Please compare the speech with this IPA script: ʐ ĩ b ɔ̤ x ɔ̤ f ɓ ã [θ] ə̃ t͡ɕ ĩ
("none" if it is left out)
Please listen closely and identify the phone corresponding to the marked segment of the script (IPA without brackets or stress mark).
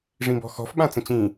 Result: t͡s